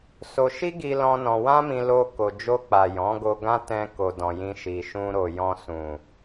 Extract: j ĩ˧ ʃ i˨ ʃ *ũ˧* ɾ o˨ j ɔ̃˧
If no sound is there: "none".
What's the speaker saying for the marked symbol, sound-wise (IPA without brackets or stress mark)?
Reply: ũ˧